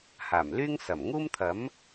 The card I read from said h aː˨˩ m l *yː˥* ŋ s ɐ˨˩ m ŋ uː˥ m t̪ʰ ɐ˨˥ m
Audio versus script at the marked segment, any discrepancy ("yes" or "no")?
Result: no